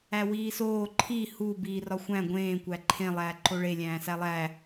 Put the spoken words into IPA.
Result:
æ w iː s oː ǃʰ i h u b iː r ɒ xʷ æ̃ ɡʷ ẽː kʷ æ ǃʰ ẽ lˠ æː ǃ o ɭ e lʲ æ̃ː s æ lˠ æ

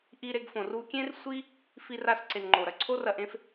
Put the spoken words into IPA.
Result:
ʔ i˧ ɾ e˧ ɡ f õ˩ r u˧ kʲ ẽ˥ r sʷ i˥ | f i˧ r a˧ s ǀ e˩ n ŋ͡ǃ o˩ ɾ ɐ˩ ǀʰ o˥ r ɐ˧ ʔ ẽ˥ f

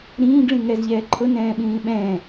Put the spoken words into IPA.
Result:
ɾ ĩː ɡ ɭ ĩ ŋ ɛ z ʎ ɛː ǃʰ ʊ n ɛ̃ː ɓ ĩː ɓ ɛ̃ː

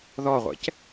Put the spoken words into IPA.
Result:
ð ɔ ʁʷ ɛ̰ c

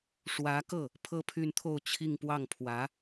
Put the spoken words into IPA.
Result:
ʂ w ä˧˥ k ɤ˥˩ | pʰ ɤ˥ pʰ y˥˧ n t̪ʰ o˥˧ ʊ̯ t͡ɕʰ i˥˧ ŋ p w ɑ˥˩ ŋ pʰ w ä˧˥

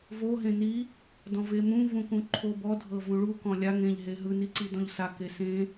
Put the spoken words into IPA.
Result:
v o ɦ ẽ n i | d ɔ̃ v e m ũ v ũ k ũ ǃʰ o b ɔ dʱ ɤ v ũ ɭ u k ɔ̃ lʲ a ŋ ẽ ʎ ɦ e ɦ ɯ n i ǀ i d ɔ̃ ʎ s a k e s ẽ

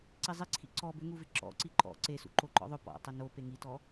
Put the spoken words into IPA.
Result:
ǀ i zˤ i ǀʰ ḭ ǀ ɔ b ʏ ŋ u v ɪ ǁ ɔ̰ ǀ i ǃ ɔ̰ ǀ e s ṵ ǃ o ǃ ɔ̰ ðˤ ʊ p ɔ̰ tˤ ɪ n o p e ŋ i t ɔ

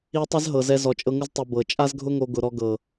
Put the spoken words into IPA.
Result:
i˧ tˤ ɛ˦ z ɦ ɤ˨ z ɛ˧ z ɔ˨ t͡ʃʼ ɤ˧ ŋ ʊ˦ z tˤ i˨ b ɤ˨ t͡ʃʼ a˦ z ɡʱ ʊ˦ ŋ o˧ ɡ ʊ˧ ɾ ɔ˧ ɡ ɤ˨

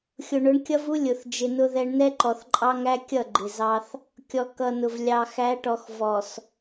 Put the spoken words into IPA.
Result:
xʲ ʊ˨ ɳ ʊ˨˦ ɳ kʲ ʌ˦ v u˦ lʲ ʊ˨ θ d͡ʒ ɪ˨ n ʊ˦ ð ɛ˦ ɳ n ɛ˦ ǃ ɔ˨ θ ǃʼ ɑ˦ ŋ æ˦ kʲ ʌ˦˨ ɡ͡ǃ ɪ˨ z ɑ˦ θ | kʲ ɔ˨ k ʌ˨ n ʊ˨ v lʲ ɑ˨ x æ˨˦ ʈ ɔ˨ x v ɔ˨ s

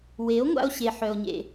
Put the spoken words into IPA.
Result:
w e˨˦ o̯ ŋʷ a̰˧ o̯ ɕ e˨ ħ œ˧ o̯ ɲ ḛ˧

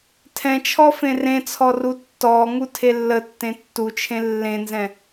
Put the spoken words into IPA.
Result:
tʰ ɛ̃ t͡ʃʰ ɔ f ẽ r ẽ t͡sʰ ɔ r u tː ɔ ŋ u tʰ e lː ə tː ẽ tː u t͡ʃʰ ẽ lː ẽ n z ɛ̃

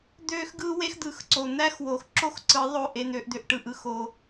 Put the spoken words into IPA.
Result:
d̪ øː˦ x ɡ ɯː˦ w e˦ x d̪ ɯː˨ x ǀ o˨ n̪ æ˦ x w oː˨ x ǁ o˦ x ǀ ɯ˨˦ ðˤ o˦˨ ʔ e˧ n̪ øː˧ ʔ d̪ ø˧ ʔ ʈ ɯ˦˨ ʔ ɯ˧ x o˧

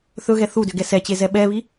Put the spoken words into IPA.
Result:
θ ɵ ɣ ɛ θ u d ʏ ɡ ɛ s ɛ t͡ɕ e z ɛ ɓ ɛ β i

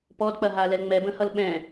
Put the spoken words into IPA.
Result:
p ɔ d k͡p ɐ ɦ a l ɛ l ŋ͡m ɛ b ə̃ h ʌ l ɓ ɛ̃

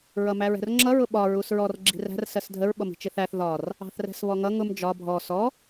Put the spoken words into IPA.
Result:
ɹ ʌ m æ ɹ ɛ̤ r ŋ͡ǁ ʌ ɹ ʊ ɓ ɒ ɹ u s ɹ ɔ r ɡ͡ǁ i̤ r æ̤ r s ɜ s dʱ ə ɹ ɓ ʌ m i̤ t͡ʃ ɪ θ æ θ ð ɒ r | ɑ̤ θ r ɛ̤ s β ɔ ŋ ʌ ŋ ʊ m d͡ʒ ɒ bʱ ɔ s ɔ

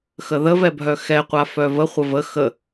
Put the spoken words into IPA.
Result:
x ə ð ə v ɛ bʱ œ x ɛ qʷ a f œ v ə χʷ ə v ə x ə

